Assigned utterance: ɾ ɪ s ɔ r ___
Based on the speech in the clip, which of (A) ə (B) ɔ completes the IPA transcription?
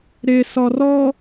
B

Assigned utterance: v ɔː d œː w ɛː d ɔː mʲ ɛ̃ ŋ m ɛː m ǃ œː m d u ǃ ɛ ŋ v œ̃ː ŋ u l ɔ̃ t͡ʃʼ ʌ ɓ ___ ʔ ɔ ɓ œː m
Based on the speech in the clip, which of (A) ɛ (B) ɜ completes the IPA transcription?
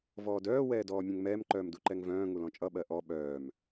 B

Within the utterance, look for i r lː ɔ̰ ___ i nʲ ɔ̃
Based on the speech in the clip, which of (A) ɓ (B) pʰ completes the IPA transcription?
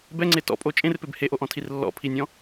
B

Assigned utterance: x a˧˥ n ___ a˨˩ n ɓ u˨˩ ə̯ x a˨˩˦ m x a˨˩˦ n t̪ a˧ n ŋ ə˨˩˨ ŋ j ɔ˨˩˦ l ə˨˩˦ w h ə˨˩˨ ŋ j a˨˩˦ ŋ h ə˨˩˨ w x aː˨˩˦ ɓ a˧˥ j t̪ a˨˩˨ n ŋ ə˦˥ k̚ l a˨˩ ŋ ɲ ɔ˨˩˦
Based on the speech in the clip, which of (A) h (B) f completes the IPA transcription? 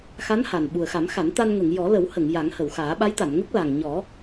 A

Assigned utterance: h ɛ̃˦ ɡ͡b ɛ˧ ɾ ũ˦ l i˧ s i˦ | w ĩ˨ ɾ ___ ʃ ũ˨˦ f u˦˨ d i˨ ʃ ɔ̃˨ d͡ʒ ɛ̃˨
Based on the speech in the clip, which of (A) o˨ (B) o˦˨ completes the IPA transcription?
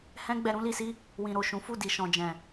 A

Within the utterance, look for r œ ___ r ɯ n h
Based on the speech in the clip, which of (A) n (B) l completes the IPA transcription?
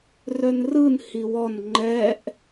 A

